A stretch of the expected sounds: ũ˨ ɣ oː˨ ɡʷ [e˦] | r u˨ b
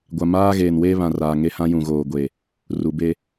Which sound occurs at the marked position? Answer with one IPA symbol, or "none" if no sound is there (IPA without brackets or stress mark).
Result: e˨